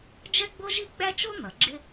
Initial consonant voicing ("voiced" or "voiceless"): voiced